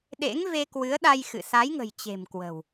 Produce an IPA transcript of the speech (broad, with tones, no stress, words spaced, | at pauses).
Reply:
ɗḛ˧˥ŋve˧kwɨ˨˦ə̯ɗa˧j xɨ̰˧˨ sa˨˦jŋə̤˨˩jt͡ɕe̤˨˩mkwə̤˨˩w